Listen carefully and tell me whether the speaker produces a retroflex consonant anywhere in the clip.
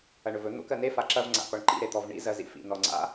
yes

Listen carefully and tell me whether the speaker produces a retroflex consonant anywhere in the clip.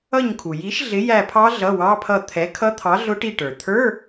yes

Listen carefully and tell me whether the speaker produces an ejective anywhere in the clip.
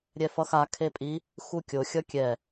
yes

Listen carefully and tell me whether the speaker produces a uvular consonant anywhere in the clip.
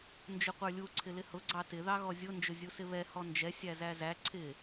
yes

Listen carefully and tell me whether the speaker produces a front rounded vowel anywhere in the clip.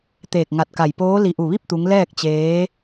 no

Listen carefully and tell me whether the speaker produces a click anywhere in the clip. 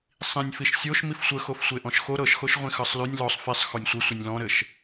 no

